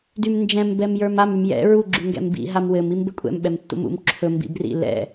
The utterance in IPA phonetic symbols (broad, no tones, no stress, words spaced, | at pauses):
dymnd͡ʒɛ̃m bɛmjə˞mam ymjɛ̰ ɹu ɡ͡ǁyŋɡɛ̰mbḭ ɦamwɘm imbɘkʷʼɛ̰m ɓɛmtːṵmṵm ǁʰɵ mbḭbrḭ lɛ̰